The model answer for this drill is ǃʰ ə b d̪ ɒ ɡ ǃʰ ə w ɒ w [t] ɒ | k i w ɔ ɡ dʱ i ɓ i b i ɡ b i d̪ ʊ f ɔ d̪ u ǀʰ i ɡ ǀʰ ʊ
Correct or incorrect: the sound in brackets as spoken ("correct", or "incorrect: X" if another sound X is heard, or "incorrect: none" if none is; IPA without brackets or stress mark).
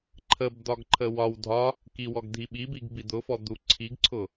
incorrect: dʱ